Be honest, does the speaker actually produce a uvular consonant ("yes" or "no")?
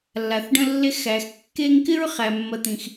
yes